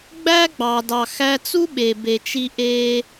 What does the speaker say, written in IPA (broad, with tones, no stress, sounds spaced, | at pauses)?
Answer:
ɡ͡b æ˦ ɡ͡b ɑ˨ d ɑ˨ x æ˧ t͡s u˦ ɓ e˨ b e˨ t͡ʃ i˧ ʔ e˧